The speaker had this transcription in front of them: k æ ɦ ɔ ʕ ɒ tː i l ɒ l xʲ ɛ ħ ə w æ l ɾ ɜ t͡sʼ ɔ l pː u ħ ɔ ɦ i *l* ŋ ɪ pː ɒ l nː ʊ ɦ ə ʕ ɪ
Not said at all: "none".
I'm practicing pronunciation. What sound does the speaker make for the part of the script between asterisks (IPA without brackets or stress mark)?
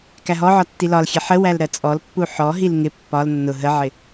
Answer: l